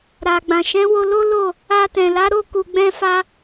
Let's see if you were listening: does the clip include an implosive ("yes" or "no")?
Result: no